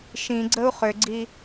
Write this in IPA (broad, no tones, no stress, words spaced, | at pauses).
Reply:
ʃĩɡ͡ǀəu̯ χʏɡ͡ǀi